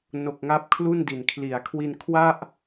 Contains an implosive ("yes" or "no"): no